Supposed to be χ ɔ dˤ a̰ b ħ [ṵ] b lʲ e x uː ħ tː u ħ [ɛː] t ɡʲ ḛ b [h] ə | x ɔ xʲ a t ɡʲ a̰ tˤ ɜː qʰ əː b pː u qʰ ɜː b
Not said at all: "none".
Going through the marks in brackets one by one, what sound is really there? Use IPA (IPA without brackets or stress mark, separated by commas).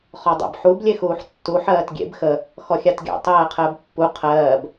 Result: u, ɜː, x